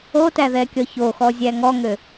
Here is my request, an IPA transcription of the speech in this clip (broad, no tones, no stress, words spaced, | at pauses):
otæðɛkʲɔ çoxɔzʲæ ŋɔŋø